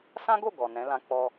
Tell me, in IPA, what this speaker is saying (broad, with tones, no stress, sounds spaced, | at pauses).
s ã˦ ɡ o˦˨ ɡ ɔ˨ n ɛ̃˨˦ l ã˦ k͡p ɔ˦